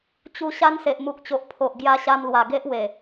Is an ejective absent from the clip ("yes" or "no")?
yes